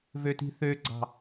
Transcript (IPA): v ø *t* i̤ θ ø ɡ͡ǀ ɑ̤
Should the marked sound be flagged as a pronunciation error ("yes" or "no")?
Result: no